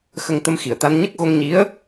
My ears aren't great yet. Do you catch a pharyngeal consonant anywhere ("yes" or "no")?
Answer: no